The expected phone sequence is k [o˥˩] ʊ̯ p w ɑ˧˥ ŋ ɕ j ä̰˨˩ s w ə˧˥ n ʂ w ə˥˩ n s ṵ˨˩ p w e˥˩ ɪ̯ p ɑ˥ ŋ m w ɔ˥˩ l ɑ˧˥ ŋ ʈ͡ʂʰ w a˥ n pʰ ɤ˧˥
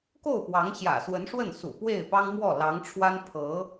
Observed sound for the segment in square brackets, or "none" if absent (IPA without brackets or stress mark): o˥˩